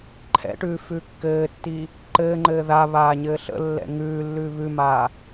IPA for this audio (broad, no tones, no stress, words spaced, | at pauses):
ǃʰɛ̰ʈʉː fʉːkːɘːtːiː | ǃɘːŋ͡ǃɘː ða βaːɲɘːɬə̰lːɛ̰ ŋʉːlːʉ βʉmaː